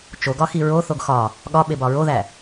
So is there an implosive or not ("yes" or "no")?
yes